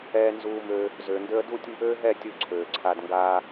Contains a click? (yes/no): yes